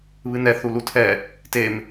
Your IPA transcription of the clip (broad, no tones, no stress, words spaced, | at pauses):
βɨnɛ θulutʰɛ | tem